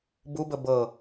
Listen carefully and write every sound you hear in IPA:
bubə bɤ

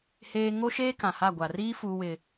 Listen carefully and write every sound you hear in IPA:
heː˦ ŋo˦ʃeː˦kã˨ha˦˨ ɡʷa˨riː˦ fuː˦wɪ˦

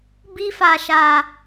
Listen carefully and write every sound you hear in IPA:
bi˧fa˨ʃa˨

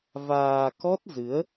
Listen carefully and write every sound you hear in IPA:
vaː˧ kɔ˦˥t̚zɨ˨˦ə̯

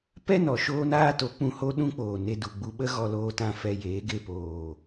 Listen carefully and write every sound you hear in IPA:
pɛ˦nɔ˨ ʃoː˦naː˦to˨˦k͡pũ˧ ho˦ɗũ˦k͡poː˨ ne˧du˨ɡ͡bu˧ɓə˦ ɣɔ˧loː˧tã˧ fɛ˧jeː˨˦ ɡe˧poː˨

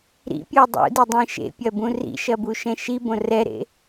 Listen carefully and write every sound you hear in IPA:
ɾḭpʲu dˤṵdidˤĩ ʃḛpʲɐbũ rḭʃɐbuʃɛ̃ ʃibõ rɛɾḛ

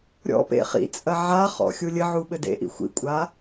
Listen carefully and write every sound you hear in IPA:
ɾʲɔ̰ pḛχḭt͡sʼɐ ʕaχɔ̰ xʲulʲɘʕu ɓɘdḛʔḭ xʷḭkʷʼa

